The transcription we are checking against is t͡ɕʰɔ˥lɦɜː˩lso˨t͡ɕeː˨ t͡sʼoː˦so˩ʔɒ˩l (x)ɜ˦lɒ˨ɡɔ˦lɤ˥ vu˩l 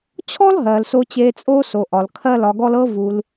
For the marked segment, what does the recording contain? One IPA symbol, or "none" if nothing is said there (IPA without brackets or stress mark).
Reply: kʰ